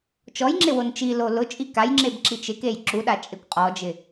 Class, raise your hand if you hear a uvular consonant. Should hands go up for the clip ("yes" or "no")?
yes